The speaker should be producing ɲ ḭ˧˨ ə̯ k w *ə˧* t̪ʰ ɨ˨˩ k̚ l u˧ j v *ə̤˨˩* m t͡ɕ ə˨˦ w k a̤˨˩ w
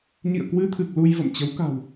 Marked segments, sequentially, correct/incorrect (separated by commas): incorrect, incorrect